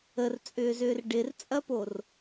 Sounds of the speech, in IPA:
ə r t͡sʼ ʏː z ʏː r ɖ ɪ r t͡sʼ ɐ p o r

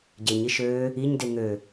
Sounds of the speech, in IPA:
ɟ e ɲ i ʃ øː | i ɲ d e ŋ ø

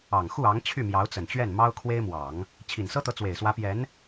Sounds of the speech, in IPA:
ɑ˨˩ ŋ x u˥˩ ɑ˧˥ ŋ t͡ɕʰ y˥˩ m j ɑ˧˥ ʊ̯ t͡s ə˨˩ n t͡ɕ ɥ ɛ˥˩ n m ɑ˥ ʊ̯ kʰ w e˥ ɪ̯ m w ɑ˨˩˦ ŋ | t͡ɕʰ i˨˩ n s ɤ˥ t̪ ɤ˧˥ t͡s w e˨˩ ɪ̯ s w ä˧˥ p j ɛ˧˥ n

